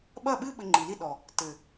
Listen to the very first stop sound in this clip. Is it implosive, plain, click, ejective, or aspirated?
implosive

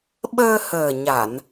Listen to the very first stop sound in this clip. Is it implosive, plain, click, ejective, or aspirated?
implosive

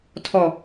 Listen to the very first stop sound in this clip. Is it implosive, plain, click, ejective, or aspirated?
aspirated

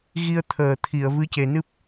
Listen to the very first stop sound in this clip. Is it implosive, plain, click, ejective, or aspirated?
aspirated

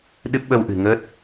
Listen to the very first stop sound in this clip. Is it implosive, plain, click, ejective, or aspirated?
implosive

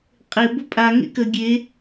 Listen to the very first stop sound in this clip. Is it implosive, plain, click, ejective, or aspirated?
ejective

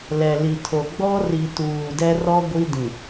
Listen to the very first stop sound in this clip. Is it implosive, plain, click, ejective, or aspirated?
aspirated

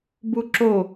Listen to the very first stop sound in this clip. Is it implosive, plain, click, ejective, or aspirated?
plain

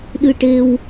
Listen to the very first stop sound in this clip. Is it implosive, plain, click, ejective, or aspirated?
implosive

